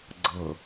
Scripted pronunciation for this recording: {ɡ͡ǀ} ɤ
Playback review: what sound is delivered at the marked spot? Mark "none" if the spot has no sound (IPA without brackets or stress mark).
ɡ͡ǀ